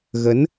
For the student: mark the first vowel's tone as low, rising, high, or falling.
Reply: rising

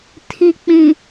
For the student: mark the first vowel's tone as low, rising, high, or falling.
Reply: low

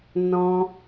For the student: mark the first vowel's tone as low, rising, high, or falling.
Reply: high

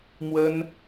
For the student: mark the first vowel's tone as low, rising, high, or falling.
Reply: high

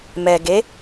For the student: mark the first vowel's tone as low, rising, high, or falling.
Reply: low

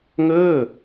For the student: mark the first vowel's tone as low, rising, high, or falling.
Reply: falling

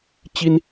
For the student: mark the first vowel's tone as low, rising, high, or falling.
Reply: high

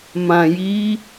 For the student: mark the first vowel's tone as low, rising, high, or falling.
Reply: low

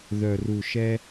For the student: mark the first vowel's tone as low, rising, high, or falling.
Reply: low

